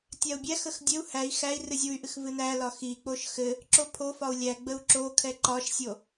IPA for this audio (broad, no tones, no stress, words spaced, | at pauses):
tʲau̯bʲæxəx dʲɘu̯ hæi̯ xæi̯ rɨzʲuy̯ʔɨx vɨnæ lɒxik͡poʃ xɘ | ǁopʰofɒu̯ lʲæɡ͡bəu̯ ǁokʰɛ ǃɒʃsʲo